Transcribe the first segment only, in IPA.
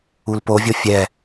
u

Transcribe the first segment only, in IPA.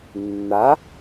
nː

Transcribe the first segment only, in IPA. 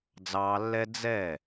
d͡z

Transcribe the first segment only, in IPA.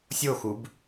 sʲ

